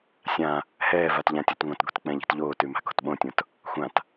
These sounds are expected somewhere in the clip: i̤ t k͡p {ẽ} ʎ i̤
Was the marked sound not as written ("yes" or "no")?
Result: yes